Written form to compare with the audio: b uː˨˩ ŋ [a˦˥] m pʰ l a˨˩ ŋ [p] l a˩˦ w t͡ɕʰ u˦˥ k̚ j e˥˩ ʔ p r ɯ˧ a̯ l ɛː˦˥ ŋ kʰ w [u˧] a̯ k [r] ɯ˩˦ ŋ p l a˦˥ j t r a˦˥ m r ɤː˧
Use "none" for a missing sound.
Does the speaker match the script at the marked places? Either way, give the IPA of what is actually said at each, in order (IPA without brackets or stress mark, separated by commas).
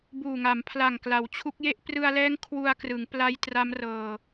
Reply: a˩˦, k, u˧, r